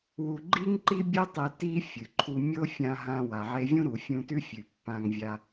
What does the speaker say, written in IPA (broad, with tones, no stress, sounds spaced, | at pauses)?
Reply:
w u˧ ɡ͡ǃ i˥ ŋ ǃ i˥ bʲ ɨ˥ tˤ e˧ t i˥ fʲ ɨ˩ ǃʰ u˧ mʲ o˥ fʲ ã˧ ɦ ã˧ w a˩ ʕ e˧ vʲ ũ˥ ɾ u˩ fʲ ũ˧ t ʉ˥ fʲ ʉ˩ pː ã˧ ŋ vʲ a˧